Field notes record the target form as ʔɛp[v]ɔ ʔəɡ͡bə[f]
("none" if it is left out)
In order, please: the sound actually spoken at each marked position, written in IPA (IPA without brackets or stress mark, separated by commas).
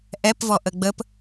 v, p